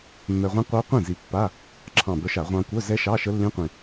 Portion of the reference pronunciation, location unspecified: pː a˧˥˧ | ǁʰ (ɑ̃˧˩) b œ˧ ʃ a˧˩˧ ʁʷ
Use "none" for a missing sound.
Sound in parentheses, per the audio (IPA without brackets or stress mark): ɑ̃˧˩